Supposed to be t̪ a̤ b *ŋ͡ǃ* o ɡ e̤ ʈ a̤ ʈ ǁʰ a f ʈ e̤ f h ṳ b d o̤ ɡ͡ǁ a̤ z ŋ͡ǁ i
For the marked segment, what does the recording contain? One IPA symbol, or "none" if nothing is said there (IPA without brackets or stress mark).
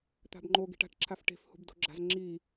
ŋ͡ǃ